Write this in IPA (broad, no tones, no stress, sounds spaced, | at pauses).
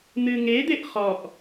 n̪ ɨ ŋ e d̪ e ʔ χ ɔ ʔ